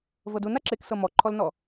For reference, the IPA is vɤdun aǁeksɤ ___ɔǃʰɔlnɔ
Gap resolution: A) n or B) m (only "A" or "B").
B